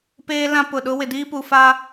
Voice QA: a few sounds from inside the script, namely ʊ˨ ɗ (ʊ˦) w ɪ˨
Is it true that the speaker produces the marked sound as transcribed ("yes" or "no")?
yes